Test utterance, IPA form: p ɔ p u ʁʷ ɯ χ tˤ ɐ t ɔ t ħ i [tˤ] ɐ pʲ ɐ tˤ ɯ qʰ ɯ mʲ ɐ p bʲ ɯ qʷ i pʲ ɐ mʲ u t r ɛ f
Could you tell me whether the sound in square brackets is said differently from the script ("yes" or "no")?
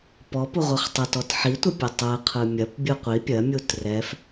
yes